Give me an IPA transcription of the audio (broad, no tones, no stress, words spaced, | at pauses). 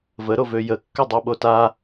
vəɾovø jəkːødˤoɓo ta